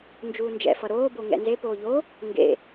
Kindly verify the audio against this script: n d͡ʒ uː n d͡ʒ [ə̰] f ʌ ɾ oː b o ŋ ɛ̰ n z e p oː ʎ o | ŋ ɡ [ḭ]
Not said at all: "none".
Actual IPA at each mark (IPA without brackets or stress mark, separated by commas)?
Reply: ɛ̰, ḛ